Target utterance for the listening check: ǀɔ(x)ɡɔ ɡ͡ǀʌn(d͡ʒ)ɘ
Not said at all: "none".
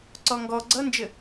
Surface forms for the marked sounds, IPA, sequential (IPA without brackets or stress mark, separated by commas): ŋ, d͡ʒ